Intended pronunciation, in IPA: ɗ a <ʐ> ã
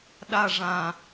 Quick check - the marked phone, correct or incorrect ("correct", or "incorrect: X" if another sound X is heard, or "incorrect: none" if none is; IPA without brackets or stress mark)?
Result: correct